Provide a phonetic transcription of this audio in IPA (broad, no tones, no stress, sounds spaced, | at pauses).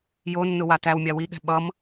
j o nː ʊ w a t æ w mʲ a w i ɠ ɛ̤ ɓ ʌ m